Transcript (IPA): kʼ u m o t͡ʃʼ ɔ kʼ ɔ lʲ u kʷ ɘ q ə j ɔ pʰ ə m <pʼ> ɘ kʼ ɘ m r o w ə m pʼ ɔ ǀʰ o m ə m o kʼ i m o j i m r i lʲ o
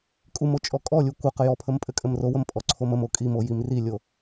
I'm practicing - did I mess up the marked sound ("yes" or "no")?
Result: no